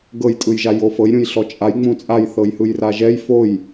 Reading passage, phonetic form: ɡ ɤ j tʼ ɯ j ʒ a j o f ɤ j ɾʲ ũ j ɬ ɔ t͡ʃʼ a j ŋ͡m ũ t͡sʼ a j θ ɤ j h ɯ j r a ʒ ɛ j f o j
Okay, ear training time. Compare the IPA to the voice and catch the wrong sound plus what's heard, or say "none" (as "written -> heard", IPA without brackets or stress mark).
none